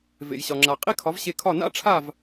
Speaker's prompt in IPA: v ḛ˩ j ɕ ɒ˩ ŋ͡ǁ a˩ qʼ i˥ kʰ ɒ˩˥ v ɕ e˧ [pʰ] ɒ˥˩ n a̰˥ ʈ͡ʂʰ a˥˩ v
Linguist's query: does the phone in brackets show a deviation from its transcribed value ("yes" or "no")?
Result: yes